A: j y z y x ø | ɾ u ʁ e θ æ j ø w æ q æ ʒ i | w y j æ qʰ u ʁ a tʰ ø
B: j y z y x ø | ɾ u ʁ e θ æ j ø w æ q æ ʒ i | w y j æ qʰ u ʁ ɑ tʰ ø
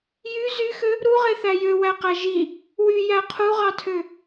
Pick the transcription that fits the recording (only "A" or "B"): B